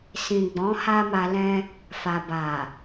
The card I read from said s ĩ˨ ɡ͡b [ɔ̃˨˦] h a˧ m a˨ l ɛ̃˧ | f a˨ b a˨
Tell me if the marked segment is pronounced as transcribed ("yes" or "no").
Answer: yes